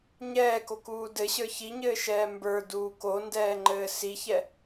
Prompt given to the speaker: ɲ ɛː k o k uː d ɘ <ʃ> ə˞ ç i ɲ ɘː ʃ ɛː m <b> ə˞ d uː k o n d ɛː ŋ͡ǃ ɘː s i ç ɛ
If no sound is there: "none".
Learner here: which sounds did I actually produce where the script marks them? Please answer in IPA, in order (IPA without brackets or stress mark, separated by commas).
ɕ, b